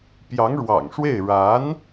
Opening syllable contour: rising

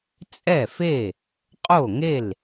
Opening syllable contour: falling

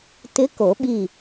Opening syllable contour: rising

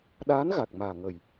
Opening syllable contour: rising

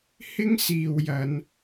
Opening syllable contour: high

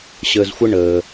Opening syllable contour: low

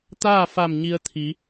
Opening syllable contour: falling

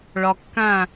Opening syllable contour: low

